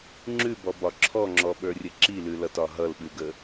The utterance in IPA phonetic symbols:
ŋ͡ǁ ʉ b ɔ b ɒ ǁʰ ɔ ŋ͡ǁ ɔ ɓ ə˞ rʲ ə ǁ i l ʉ l ʌ t ɒ ɦ ʌ l ɓ ʉ ɡ ə

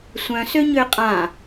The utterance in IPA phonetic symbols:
sʷ œ̃ s ø ɲ ø qʼ ã

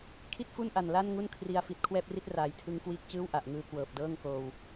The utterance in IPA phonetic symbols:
kʰ i˥˩ t̚ f u˥˩ n ʔ a˨˩ n l a˥˩ n ŋ u˥˩ n kʰ r i˧ a̯ f i˨˩ t̚ kʰ w ɛː˥˩ p̚ r i˦˥ t̚ r aː˨˩ j tʰ ɯ˦˥ ŋ k w iː˦˥ k̚ t͡ɕ ɯː˥˩ w ʔ a˨˩ ʔ ŋ ɯː˧ k w ɤː˨˩ p̚ d ɤː˥˩ ŋ k oː˧ w

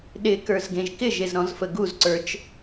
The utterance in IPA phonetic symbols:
ɗ ɪ k ə˞ z ɡ ẽ ʒ k ɪ ʒ e z ɾ ɔ̃ z f ə ɡ u z ǀ ə˞ t͡ʃ

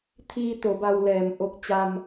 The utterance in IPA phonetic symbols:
t̪ʰ iː˧ t̪ o˩˧ b a˧ w l ɛː˩ m ʔ o˧ k̚ t͡ɕ a˧ m

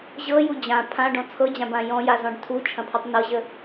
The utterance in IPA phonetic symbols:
ʑ ɤ j u d͡ʑ ã pʰ ã ɖ ɔ̃ t͡sʰ ɤ d͡ʑ ã b ã j ɔ̃ j a z ɔ̃ ɖ tʰ u t͡ʃʰ ɐ̃ pʰ ɤ tˤ n ɤ ʑ ə

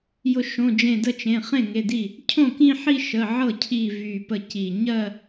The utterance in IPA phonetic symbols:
j ʊ˧˩ ʃ õ˩˧˩ d͡ʒ ẽ˧˩ d ə˥˩ t͡ʃ ẽ˩˧˩ χ ẽ˥˩ ŋ e˩˧˩ d i˥˩ | cʰ õ˥˩ k ĩ˥˧ ħ i˥˧ ʃ ə˩˧˩ ʕ ɤ˥˩ cʰ i˧˩ v y˧˩ p ə˥˩ c i˧˩ ɲ ɜ˥˧

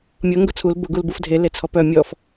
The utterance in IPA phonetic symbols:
mʲ ɤ ŋ ɡ ʊ t͡sʰ u l b ʊ ɡ u l b u f dʱ e l e t͡sʰ ɔ p œ mʲ ɔ f

